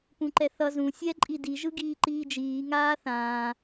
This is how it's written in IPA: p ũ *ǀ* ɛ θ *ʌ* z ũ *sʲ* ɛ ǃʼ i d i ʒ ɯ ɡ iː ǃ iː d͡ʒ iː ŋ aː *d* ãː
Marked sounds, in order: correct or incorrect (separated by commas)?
incorrect, correct, correct, incorrect